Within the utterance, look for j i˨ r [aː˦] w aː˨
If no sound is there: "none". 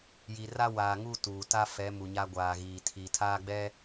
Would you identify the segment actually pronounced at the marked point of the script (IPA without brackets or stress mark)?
a˦